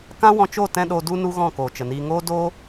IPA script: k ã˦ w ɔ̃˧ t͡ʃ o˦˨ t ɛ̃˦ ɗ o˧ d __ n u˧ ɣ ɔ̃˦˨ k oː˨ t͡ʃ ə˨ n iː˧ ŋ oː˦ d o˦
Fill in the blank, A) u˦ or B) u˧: B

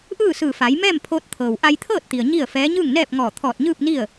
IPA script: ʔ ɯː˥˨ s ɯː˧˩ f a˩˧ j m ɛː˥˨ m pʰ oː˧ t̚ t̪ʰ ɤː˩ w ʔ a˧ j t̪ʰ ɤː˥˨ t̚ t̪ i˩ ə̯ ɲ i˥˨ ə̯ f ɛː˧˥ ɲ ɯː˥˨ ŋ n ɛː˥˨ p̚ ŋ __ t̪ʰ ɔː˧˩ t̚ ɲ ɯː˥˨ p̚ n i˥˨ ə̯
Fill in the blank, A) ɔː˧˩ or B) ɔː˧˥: A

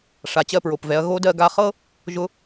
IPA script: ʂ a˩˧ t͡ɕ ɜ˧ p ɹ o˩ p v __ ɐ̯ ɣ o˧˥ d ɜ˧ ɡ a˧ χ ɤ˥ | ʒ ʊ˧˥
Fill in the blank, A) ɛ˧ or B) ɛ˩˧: B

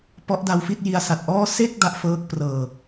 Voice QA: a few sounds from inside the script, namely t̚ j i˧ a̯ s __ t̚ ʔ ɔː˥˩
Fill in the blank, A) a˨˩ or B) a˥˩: A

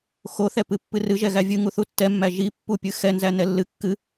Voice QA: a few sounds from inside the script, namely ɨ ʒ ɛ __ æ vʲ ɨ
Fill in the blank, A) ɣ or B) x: A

